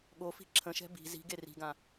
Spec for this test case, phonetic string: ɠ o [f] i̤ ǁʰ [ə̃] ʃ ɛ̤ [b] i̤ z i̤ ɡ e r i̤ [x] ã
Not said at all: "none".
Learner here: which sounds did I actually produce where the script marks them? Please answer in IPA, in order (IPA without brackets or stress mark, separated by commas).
f, ə̃, b, ɡ